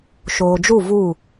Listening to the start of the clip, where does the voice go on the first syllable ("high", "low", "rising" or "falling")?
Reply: low